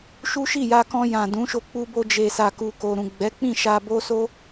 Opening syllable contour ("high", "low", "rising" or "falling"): high